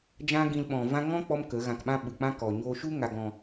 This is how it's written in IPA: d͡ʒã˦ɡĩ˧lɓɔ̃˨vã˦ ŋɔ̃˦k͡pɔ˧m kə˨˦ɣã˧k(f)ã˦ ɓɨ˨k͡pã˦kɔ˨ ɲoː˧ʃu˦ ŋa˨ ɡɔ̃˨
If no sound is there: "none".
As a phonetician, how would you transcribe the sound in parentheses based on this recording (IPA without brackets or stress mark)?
ɓ